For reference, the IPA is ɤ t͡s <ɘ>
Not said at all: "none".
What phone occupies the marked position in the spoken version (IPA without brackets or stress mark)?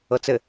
ɘ